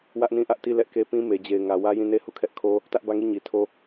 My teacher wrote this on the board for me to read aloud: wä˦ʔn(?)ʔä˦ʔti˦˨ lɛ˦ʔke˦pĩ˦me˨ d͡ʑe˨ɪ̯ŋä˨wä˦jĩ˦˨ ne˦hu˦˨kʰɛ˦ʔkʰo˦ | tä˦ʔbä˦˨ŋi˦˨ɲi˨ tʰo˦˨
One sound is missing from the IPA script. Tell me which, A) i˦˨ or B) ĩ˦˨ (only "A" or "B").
B